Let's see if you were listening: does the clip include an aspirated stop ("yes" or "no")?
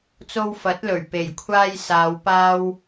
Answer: yes